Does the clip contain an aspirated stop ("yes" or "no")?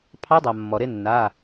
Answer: yes